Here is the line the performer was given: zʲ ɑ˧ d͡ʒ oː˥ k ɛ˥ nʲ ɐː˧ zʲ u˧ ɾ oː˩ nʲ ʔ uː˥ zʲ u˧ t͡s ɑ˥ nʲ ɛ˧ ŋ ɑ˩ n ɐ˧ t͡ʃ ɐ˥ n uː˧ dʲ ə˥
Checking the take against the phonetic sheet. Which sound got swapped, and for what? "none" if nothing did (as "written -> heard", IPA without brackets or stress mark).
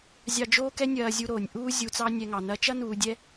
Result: ə˥ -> ɛ˥